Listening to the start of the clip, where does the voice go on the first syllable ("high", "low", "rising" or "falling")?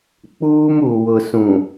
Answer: high